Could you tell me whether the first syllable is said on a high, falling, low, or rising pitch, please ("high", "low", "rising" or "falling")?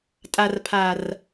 low